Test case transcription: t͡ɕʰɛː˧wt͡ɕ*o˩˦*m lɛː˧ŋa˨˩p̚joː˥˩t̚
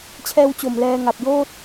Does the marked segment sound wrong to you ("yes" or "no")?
yes